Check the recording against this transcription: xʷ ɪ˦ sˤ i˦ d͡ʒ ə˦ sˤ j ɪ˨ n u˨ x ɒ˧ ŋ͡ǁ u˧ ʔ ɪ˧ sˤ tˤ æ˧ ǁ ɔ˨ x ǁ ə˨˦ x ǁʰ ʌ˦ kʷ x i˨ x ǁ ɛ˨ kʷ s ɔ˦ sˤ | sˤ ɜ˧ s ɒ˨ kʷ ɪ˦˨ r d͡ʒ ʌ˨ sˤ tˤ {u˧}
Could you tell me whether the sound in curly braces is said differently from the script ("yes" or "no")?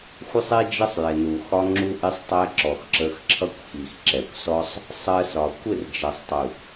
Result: yes